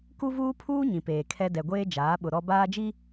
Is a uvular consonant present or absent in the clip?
absent